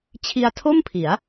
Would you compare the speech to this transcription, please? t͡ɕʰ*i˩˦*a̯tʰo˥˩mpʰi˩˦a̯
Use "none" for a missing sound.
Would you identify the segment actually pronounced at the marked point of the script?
i˧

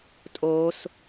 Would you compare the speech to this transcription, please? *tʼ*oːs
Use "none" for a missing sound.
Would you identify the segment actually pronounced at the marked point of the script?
tʼ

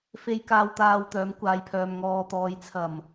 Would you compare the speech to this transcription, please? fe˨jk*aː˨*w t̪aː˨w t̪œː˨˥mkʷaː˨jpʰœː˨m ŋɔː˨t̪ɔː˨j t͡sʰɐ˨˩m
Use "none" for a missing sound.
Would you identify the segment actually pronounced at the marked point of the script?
aː˨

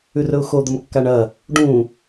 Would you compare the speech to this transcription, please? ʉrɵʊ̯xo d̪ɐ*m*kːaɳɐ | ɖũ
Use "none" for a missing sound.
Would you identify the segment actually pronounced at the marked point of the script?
m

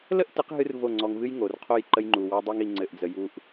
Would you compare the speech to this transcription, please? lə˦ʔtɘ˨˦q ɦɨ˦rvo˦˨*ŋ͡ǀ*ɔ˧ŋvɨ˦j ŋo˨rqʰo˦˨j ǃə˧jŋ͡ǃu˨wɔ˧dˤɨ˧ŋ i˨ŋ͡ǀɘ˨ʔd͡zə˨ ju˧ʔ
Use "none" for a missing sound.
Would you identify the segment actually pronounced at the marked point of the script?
ŋ͡ǀ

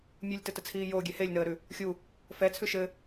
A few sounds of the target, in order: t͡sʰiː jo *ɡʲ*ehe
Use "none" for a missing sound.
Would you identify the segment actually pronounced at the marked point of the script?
ɡʲ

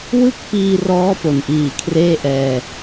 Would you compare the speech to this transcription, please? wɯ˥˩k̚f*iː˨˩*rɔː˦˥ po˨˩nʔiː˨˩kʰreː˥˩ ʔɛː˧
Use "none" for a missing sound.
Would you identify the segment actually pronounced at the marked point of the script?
iː˧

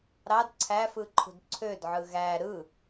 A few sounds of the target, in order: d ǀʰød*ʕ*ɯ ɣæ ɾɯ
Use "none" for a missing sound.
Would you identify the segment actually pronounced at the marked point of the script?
ʕ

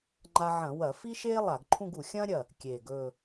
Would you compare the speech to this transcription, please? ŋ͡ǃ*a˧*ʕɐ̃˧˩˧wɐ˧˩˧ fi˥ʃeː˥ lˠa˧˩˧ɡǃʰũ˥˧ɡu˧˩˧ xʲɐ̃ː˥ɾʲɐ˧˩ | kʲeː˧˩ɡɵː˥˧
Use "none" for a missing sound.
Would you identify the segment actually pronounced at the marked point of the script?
a˧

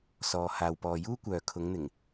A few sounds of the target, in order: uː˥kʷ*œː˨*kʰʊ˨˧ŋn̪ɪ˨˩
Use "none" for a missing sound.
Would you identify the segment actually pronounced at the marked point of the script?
œː˨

